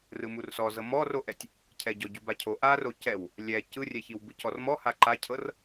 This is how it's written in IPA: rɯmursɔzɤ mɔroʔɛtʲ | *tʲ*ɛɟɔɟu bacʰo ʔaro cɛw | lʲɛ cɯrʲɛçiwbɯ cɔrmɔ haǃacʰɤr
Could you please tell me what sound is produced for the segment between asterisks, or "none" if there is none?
cʰ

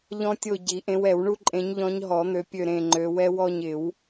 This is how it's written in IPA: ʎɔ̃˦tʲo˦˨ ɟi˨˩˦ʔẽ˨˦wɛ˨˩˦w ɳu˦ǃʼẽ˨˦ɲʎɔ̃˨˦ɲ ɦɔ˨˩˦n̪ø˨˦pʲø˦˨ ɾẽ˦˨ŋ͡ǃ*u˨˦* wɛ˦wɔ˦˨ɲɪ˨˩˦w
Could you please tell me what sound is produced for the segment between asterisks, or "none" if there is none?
ø˨˦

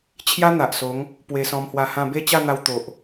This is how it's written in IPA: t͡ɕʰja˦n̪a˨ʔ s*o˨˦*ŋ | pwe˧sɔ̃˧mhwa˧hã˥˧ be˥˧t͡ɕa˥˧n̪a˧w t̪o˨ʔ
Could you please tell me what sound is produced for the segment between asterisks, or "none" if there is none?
o˨˦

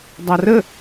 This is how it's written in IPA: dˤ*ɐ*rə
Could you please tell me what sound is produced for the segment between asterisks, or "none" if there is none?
a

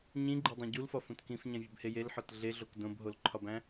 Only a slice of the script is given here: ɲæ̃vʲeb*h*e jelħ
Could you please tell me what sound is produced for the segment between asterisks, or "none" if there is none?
h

